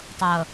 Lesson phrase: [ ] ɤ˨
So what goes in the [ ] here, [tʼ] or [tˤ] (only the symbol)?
tˤ